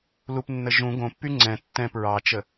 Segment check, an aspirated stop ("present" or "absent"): absent